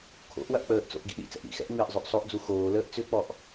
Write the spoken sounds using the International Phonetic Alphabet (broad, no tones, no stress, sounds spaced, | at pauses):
kʰ o̰ ʔ w ɐ ʔ k͡p əː ʔ t͡s o̰ ʔ ɡ ḭ ɗ ḭ t͡s ɛ̰ ʔ ɾ ḭ x ɛ̰ ʔ ŋ͡m ɪː ʔ zˤ ø ʔ sˤ o ʔ d͡z u x oː l əː ʔ t͡s ʏ k͡p ɔ ʔ